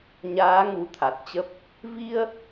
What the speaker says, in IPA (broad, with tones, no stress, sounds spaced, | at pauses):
ɲ aː˨˦ ŋ u˨˦ t̪ʰ a˨˩ t̚ t͡ɕ ə˦˥ p̚ | v i˧ ə̯